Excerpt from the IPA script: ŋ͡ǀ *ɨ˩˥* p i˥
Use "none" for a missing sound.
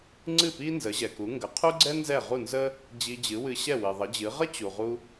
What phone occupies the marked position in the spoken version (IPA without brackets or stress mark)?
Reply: ɨ˥˩